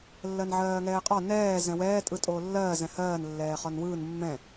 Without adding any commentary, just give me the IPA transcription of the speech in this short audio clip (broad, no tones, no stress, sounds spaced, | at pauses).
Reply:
lː ɜ n ʕ ɜː ŋ ɛː qʼ ɒ n ɛː z ɛ̃ w ɛː tʼ ɯ tʼ oː lː ɜː z ɛ̃ h ɜː n lː ɛː χ ɒ n w ɯː n mː ɛ̃